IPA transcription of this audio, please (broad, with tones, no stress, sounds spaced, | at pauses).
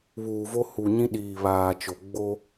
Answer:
β uː˨ v o˦ h u˨ ɲ ĩ˦ ɗ iː˨ β aː˨ t͡ʃ o˨ ɡ͡b o˦